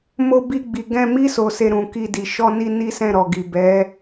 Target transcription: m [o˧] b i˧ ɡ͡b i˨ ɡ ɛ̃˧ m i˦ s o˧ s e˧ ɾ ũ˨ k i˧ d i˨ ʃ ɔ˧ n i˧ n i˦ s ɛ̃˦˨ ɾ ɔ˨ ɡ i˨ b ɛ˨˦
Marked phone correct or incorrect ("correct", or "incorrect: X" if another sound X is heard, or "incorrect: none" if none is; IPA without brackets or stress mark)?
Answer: correct